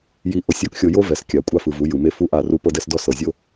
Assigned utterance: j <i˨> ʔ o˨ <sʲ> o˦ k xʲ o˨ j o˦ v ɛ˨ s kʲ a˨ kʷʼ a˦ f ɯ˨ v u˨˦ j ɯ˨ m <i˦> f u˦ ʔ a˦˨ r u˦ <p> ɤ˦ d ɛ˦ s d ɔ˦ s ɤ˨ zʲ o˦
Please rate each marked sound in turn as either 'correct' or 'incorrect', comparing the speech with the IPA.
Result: correct, correct, incorrect: e˦, correct

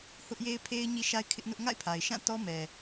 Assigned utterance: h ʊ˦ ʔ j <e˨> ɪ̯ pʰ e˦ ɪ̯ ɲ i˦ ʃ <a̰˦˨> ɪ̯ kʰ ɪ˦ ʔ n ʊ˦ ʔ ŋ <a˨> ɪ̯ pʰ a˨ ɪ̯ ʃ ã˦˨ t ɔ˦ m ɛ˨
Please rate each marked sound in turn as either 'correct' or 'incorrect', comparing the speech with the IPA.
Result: incorrect: e˦, incorrect: a˦, incorrect: a̰˦˨

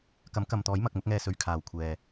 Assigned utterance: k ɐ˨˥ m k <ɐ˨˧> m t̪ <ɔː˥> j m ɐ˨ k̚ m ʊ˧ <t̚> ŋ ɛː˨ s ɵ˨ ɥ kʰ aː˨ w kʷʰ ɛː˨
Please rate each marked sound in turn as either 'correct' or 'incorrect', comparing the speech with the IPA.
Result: incorrect: ɐ˨, incorrect: ɔː˨˥, incorrect: k̚

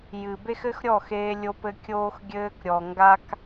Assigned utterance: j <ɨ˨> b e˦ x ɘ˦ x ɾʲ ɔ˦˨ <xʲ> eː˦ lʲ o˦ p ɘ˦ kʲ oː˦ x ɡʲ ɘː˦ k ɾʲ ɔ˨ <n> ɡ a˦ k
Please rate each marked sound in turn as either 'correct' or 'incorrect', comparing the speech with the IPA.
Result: correct, incorrect: x, incorrect: ŋ

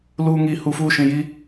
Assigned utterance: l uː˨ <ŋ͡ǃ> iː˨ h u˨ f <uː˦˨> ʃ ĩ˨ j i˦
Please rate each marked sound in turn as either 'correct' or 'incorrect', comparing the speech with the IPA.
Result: incorrect: ŋ, correct

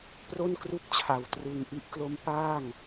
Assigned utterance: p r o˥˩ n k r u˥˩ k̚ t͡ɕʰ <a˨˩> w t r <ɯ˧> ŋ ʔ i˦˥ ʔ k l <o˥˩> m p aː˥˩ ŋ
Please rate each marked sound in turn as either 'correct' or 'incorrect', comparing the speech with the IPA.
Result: correct, correct, incorrect: o˦˥

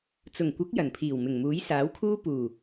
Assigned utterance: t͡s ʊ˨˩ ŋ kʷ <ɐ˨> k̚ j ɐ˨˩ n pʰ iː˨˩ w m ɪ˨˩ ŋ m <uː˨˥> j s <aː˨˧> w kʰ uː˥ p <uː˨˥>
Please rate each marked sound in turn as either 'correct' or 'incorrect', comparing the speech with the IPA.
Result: incorrect: ɐ˨˥, correct, incorrect: aː˨˥, incorrect: uː˨˩

